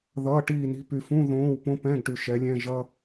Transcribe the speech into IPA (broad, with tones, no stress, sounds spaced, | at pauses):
ð ʌː˧˥˧ ʈ iː˥˨ n i̤˥ p y˨ f ũ˧˥˧ ð õː˧˥˧ w p õ˥ p ɛ̃ː˧˥˧ ɡ ʈ y˨ ʃ ɛ˨˦ lʲ ɛ̃˧˥˧ ʒ ʌ˥